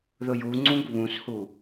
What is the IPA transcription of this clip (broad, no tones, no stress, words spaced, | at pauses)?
ðʊjuŋ͡ǀũɡ βũshu